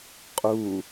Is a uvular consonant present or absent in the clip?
present